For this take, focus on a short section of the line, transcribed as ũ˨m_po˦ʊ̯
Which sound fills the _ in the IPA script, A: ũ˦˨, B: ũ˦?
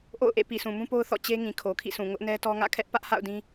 B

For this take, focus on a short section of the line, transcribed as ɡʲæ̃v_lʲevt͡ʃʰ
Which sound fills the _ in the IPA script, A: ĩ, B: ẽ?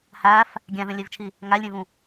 B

